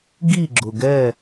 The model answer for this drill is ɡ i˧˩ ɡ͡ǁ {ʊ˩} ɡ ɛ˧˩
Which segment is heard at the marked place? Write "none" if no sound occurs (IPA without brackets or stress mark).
ʊ˩